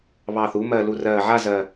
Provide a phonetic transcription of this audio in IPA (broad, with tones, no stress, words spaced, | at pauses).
βɑː˨˩θu˩˧mɜ˨˩ lu˨˩rɜː˨˩ ʕa˥˧zɜ˨˩